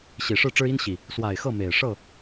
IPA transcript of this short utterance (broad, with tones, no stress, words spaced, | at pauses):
ɕi˨˩ʂɻ̩˥˨ʈ͡ʂɻ̩˦ i˦nɕi˨˩ | swa˨˩ɪ̯ xɤ˥˨me˨˩ɪ̯ ʂɤ˥˨